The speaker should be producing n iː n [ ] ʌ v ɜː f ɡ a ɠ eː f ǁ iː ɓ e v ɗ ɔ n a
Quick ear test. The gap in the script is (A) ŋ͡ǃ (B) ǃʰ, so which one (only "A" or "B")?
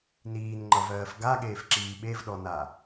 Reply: A